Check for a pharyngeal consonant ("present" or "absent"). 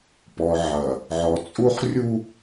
present